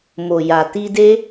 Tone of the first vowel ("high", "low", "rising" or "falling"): low